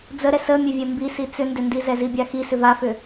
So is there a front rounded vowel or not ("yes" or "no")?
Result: yes